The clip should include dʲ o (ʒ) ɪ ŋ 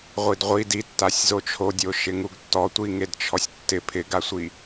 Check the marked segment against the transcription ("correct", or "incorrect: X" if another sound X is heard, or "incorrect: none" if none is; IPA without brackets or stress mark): incorrect: ʃ